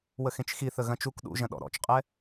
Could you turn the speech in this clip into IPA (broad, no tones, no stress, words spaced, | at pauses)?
wəxẽt͡ʃxiθə ɣɐ̃t͡ʃuk ɗṵʒɐ̃ɗɔ̰ ɾɔ̰t͡ʃqʼɛ